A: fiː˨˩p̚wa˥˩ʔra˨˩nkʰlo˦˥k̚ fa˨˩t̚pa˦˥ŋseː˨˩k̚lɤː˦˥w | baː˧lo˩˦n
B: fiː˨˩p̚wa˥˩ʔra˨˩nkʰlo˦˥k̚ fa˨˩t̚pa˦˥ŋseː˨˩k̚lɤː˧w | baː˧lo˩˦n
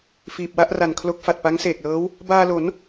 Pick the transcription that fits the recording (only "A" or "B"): A